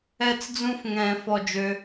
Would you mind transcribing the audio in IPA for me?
ɛ˧˩ t͡s d͡z ũ˧ f ŋ ɛ̃ː˨˩˦ f ɔ˧˩ d͡ʒ ø˧

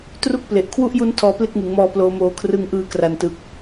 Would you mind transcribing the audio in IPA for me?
t r u˥˩ k̚ p l e˨˩ ʔ kʰ w u˥˩ ʔ j u˦˥ n tʰ ɔː˧ p l e˥˩ k̚ ŋ ɯ˩˦ ŋ m ɔː˧ p l oː˧ m oː˧ kʰ r ɯ˧ ŋ ʔ ɯː˧ k r a˨˩ n t ɯ˨˩ k̚

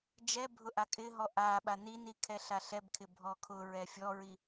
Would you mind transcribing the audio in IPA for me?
d͡ʒ ɛ bʱ ʊ ʔ a kʼ ɪ ɦ ɔ ʔ a ɓ a n i n i kʰ ɛ ɬ a ɬ ɛ b kʰ ɪ bʱ ɔ kʰ ʊ ɹ ɛ fʲ ɔ ɹ i

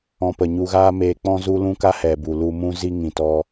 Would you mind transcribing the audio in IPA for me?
ɔ̃˧ p ə˨ ɲ u˧ ɣ aː˦ m eː˧ k͡p ɔ̃˦ z u˦ l ũ˦ k a˦ h ɛ˨ b u˨ l u˧ m ũ˧ z i˦ ŋ ĩ˨ t ɔ˧

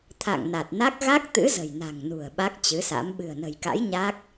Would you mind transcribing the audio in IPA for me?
t̪ʰ a̰˧˨ ŋ n a˨˩ t̚ n a˦˥ k̚ ɣ a˦˥ k̚ t̪ ɨ̰˧˥ z ə̤˨˩ j n a̤˨˩ ŋ n ṳ˨˩ ə̯ ɓ a˦˥ k̚ t͡ɕ ɨ˨˦ s a̰˧˥ m ɓ ɨ̤˨˩ ə̯ n ə̤˨˩ j k a̰˧˥ j ɲ a˦˥ k̚

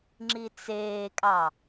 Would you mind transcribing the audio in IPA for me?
ŋ͡ǁ i t͡s eː kʼ ɑ

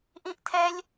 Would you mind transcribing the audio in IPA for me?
ʔ ĩ ʔ tʰ ɛ lʲ

